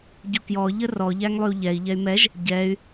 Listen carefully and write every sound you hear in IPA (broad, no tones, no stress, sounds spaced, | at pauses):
ɟ u k j ɔ ʎ ə r ɔ ʎ æ ŋ lˠ y u̯ ʎ ɛ i̯ ʎ ɛ y̯ m ɛ ʒ | ɟ ɛ y̯